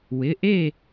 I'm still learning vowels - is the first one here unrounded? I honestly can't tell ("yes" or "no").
yes